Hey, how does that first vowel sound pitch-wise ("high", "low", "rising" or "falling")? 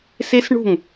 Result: high